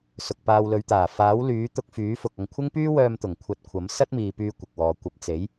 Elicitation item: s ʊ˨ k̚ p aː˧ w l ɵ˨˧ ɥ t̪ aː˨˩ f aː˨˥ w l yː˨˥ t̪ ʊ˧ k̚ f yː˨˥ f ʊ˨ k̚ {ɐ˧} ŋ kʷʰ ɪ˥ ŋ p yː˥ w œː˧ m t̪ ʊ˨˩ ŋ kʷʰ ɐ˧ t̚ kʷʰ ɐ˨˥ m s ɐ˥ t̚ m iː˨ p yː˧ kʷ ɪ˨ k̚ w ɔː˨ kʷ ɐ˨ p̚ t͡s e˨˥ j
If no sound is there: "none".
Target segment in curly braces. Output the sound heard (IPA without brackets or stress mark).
ɐ˧